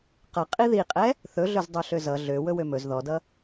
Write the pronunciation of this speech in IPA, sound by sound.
q ʌ qʼ i ð i qʼ ɛ | θ ɵ ɮ ɵ z dˤ ø ɬ ø z ʌ ɮ ø w ɵ w ø m ɵ z ð ɔ d ʌ

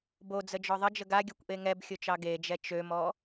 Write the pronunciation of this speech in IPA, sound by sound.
b o d͡z ə d͡ʒ ɔ ðˤ ə d͡ʒ ə ɡ a ɡʲ ɔ kʷ ʔ e ŋ ɛ b xʲ o t͡ʃ ɑ ɡ e d͡ʒ ɛ t͡ʃ ø m ɔ

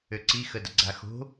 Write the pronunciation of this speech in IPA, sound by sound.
ø ǀ i x ə d ə ɡ͡ǀ a x o̤

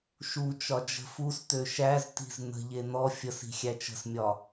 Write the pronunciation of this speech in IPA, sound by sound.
ʃ u t͡ʃ ɒ d͡ʒ ə̤ f u s t ø ʃ æ z t i̤ z n ə̤ ʎ e n ɔ fʲ ə s i̤ xʲ æ t͡ʃ ə̤ s mʲ ɒ

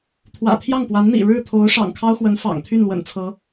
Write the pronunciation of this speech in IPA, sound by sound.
t̪ʰ w ä̰˨˩ t̪ʰ j ɑ˥˩ ŋ p w a˧˥ n n̪ ḭ˨˩ ɻ ɻ̩˥˩ t̪ʰ o˧˥ ʊ̯ ʂ ɑ̰˨˩ ŋ kʰ ɑ˥ ʊ̯ x w ə˧˥ n f ɑ̰˨˩ ŋ t̪ʰ y˥˩ n l w ə̰˨˩ n t͡sʰ ɤ˧˥

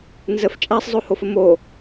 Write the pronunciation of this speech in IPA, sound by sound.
n z ə f t͡ʃʼ a sˤ zˤ o h o f ə m o

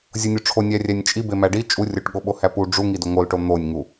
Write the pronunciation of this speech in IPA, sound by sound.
zʲ o nʲ o ʈ͡ʂʰ o nʲ æ rʲ æ nʲ t͡ʃʼ i b e m æ ɖ i t͡ʃʼ u rʲ o ʈ ɠ o ɓ o h æ p u ɖ͡ʐ u ŋ i d o ŋ o l ʈ o n̪ o nʲ ŋ u

